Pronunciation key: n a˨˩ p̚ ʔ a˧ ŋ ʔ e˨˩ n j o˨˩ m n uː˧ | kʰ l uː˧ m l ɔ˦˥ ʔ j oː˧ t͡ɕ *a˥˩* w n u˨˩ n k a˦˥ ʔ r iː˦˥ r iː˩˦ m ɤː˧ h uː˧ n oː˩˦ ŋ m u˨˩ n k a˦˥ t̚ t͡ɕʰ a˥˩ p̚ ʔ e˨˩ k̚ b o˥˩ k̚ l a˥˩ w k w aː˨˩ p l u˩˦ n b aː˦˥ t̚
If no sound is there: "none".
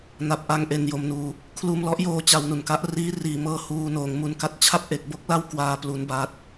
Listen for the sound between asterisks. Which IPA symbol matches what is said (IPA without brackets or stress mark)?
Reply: a˧